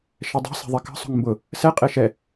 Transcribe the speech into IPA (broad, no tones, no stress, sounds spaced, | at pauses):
ʃ ɛ dˤ e̤ s e̤ ðˤ e k ə̤ sˤ o̤ ŋ m b ʊ | s ɛ qʼ e ʃ ɛ